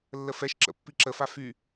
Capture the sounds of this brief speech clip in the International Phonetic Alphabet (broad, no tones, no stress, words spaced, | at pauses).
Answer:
lːəfɛʃǁə̰ pːiǁəfa fy